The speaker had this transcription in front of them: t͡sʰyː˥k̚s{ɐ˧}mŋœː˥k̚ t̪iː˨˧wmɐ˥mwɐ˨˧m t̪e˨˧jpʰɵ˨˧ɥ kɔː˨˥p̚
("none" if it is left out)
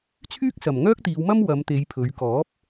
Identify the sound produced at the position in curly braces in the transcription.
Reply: ɐ˨˩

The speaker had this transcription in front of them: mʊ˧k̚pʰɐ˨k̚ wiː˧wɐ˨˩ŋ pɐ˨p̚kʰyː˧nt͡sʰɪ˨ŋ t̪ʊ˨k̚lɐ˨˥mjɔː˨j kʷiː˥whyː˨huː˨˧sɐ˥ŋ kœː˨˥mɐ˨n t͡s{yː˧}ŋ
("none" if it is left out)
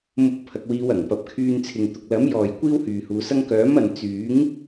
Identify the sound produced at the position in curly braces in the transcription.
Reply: yː˨˥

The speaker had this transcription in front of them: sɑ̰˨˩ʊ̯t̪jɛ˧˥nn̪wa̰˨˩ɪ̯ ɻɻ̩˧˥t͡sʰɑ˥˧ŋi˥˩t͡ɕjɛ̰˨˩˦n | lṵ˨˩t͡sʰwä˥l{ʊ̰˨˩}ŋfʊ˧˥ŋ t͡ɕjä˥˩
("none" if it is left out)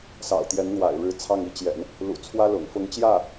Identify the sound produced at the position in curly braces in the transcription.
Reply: ʊ̰˨˩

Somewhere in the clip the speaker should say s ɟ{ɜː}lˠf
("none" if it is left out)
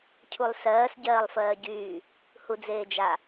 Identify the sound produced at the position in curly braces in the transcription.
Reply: ɜː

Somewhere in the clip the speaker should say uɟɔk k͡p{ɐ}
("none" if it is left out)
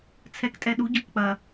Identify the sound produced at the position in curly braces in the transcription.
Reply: ɐ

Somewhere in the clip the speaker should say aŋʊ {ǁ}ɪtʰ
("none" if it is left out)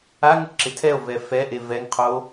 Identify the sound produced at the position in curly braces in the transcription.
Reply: ǁ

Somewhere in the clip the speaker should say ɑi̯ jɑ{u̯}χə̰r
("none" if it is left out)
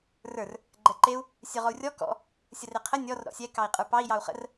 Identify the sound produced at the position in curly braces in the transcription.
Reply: u̯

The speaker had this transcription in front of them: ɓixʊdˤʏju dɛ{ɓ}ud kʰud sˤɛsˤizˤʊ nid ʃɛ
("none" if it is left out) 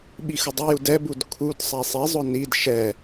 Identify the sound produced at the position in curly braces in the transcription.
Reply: b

